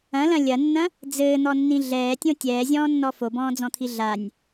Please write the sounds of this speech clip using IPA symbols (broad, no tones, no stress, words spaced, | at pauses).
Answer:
ɐ̃lɐ̃ lʲɐnːɐ̃ | d͡zɘːn̪ɔnːĩ ɮɛːtʲõ tʲɛːzʲɔ̃ːnːɔ fobɔ̃ːd͡zɔ̃t̪ʰi ɮanʲ